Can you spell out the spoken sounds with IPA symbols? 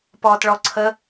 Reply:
p ɔː t ɭ ɔ ǀʰ ə

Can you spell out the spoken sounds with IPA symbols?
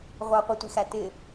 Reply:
ʁʷ ɑ qʷ ɪ tʷ i x æ t ɪ

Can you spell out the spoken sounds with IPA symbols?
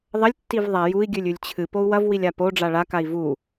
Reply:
ðˤ ɐ lʲ tː i v ðˤ a j u i̯ ɡʲ ʉ lʲ ʉ lʲ t͡ɕʰ ɨ p o u̯ w ɐ v w i lʲ a p o ɖ͡ʐ a ɭ a k a i̯ v u

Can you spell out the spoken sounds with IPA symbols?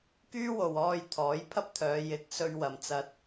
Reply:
k yː˥ w o˨ w ɔː˧ j t̪ʰ ɔː˨˥ j pʰ ɐ˥ p̚ t̪ʰ œː˨˧ j ɪ˨˥ k̚ s ɵ˧ ɥ w ɐ˨ m t͡s ɐ˧ t̚

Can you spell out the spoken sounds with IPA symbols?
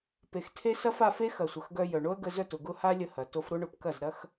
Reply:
p e˨ x tʰ e˧ s ɐ˦ f a˧ f e˦ x ɐ˨ sʷ ɐ˨ x ɡ œ˧ j œ˨ ɳ o˦ ə̯ ɡ ə˧ z œ˦˨ t ʊ˨ ɡ ʊ˦ h a˦ lʲ ə˧ h ɐ˨ t o˧ f ɾ o˦ ɳ ʊ˨˦ p k ɐ˦˨ z ɾ ɐ˦ x

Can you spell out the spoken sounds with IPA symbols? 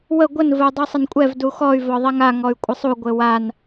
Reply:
w ə ɡʷ ə n v ə u̯ dˤ u sˤ ə n kʷʼ ɛ v d u x ɔ y̯ v ɔ ðˤ ɛ ŋ a ŋ ɔ y̯ kʷʼ ə sˤ u ɡʷ ɘ w a n

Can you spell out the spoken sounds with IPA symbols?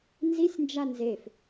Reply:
n z i sʲ n d͡ʒ a n z e f

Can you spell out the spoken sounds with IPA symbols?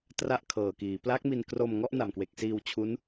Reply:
t r a˥˩ ʔ kʰ ɤː˨˩ k iː˩˦ p l a˦˥ k̚ m i˧ n k r o˧ m ŋ ɔ˥˩ ʔ n a˨˩ m k w e˨˩ k̚ s iː˧ w t͡ɕʰ u˦˥ n

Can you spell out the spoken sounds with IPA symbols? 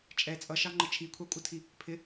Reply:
t͡ʃʼ ɛ t͡sʼ ʌ ʃ ɑ ŋ͡ǃ ə t͡ʃʰ i kʷʰ ɑ kʷʼ ʌ tʰ i | pʰ ɪ

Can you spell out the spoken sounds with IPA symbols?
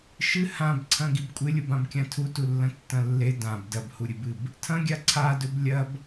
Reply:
ʃ ɨ h ã b ǀʰ ɐ̃ ɡ i b kʷʼ ɨ lʲ u b ã b kʲ ã tʰ u t u lː ɐ̃ tː ɐ̃ lː e d ã b d ɐ b h u ɾʲ ɨ b ɨ b | tʰ ɐ̃ ɡʲ a ǀʰ a d ɵ b lʲ ɐ b

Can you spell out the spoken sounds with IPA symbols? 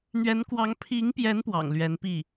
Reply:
n̪ ɥ ɛ˧˥ n k w ɑ˧˥ ŋ pʰ i˧˥ ŋ p j ɛ˧˥ n p w ɑ̰˨˩ ŋ l ɥ ɛ˧˥ n p i˥˩

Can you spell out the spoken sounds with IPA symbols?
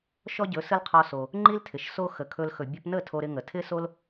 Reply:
ʃ ɔ˦ ɟ ɵ˨˦ s ə˦ l qʰ ɔ˧ s o˧ | ŋ͡ǃ i˦ l tʰ ɪ˨ ʃ s o˧ x ə˨ kʰ ɵ˧ l x ɵ˨ bʲ ɵ˧ p n ə˦˨ tʰ o˧ ɾ ɪ˧ ŋ ə˨ tʰ ɪ˦ s o˦ l

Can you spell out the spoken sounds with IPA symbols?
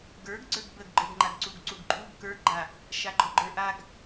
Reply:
ɡ ə˞ ɡ ɡ͡ǀ ə˞ ɡ b ə ɡ ɡ͡ǃ ə˞ ɡ ŋ͡ǃ a ɡ ǀ u ɡ ǀ u ɡ ǃʼ u ɡ k ə˞ ɡ ɡ͡ǃ a | ʃ a ɡ͡ǃ ɔ ɡ͡ǃ ə˞ ʔ a ɡ

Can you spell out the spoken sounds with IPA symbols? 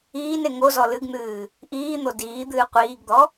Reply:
iː n e ŋ o z ɔ l ɨ ɡ n̪ ɨː | ʔ iː n̪ o d iː d̪ ɨː qʷ iː ɡ d̪ ɔ

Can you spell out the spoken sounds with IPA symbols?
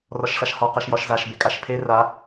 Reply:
r ɒ ʃ ɬ a ʃ h ɒ q a ʃ j ɒ ʃ z a ʃ b e kʼ a ʃ pʰ e r a

